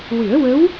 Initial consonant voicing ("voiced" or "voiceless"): voiced